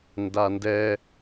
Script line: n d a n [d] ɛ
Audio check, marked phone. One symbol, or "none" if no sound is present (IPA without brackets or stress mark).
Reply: d